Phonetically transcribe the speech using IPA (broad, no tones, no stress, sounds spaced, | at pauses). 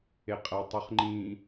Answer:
e qʼ æ tˤ u χ ŋ͡ǃ ĩ